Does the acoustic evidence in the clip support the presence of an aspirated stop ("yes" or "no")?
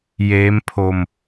yes